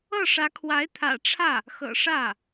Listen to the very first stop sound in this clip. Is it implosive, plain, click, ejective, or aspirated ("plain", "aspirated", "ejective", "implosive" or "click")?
aspirated